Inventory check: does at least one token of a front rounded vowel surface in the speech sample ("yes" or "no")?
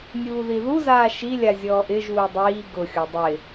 no